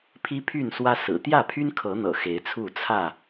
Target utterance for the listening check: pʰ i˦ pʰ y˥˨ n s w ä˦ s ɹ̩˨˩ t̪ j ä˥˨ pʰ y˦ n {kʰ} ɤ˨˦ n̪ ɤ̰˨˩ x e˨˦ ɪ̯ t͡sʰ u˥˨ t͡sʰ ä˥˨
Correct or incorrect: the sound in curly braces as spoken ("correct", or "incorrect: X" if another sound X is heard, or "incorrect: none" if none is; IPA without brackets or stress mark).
correct